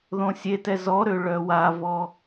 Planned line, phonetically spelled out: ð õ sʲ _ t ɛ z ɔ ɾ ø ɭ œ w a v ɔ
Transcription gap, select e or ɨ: e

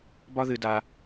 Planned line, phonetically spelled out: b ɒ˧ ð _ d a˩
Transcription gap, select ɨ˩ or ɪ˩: ɨ˩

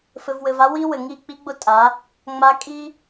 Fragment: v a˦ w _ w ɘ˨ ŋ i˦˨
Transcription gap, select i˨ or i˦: i˦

